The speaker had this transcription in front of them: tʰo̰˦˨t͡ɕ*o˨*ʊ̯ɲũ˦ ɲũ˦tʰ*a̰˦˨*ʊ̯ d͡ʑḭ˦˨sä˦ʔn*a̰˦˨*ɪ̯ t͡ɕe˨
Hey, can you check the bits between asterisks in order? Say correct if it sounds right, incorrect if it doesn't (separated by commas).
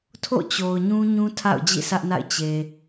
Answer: correct, correct, correct